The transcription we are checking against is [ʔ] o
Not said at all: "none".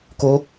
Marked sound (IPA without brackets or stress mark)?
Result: k